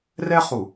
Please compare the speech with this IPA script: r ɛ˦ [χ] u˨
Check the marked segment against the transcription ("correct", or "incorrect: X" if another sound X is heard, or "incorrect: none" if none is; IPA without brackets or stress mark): correct